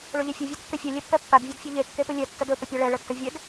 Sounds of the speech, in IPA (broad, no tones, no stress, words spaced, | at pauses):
ɭɵʎɛfʲɵ vʲadkːɛfʲɛ lʲɛpːɛpːad vʲedfʲɛʎe kːepɵlʲɛ tːədɵ pəpʲaɭɛ ɭətːəvʲɛd